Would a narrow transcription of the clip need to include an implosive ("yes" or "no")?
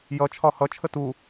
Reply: no